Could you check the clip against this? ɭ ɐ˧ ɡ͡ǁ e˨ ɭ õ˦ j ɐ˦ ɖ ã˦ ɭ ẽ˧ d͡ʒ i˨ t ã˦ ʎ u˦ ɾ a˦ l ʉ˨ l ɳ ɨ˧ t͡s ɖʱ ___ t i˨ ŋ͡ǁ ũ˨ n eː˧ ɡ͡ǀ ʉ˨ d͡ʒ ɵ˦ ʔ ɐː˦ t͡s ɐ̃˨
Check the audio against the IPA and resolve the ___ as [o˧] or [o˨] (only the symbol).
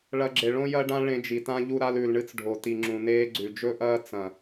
o˨